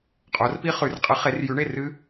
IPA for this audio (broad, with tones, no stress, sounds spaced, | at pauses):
qʼ o˨˦ r p i˦˥ χ ʉ˨˦ r qʼ ɯ˨˦ χ e˨˦ r j ʉ˨˦ ɳ e˥˨ r ɨ˦˥